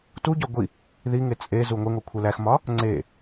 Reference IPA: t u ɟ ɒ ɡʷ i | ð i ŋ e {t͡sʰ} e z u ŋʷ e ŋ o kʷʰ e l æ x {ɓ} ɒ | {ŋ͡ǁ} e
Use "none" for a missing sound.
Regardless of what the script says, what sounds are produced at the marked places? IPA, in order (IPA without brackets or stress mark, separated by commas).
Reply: t͡sʼ, m, ŋ͡ǀ